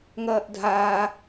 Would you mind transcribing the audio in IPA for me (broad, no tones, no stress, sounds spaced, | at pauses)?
ŋ ɐː ʔ dʱ aː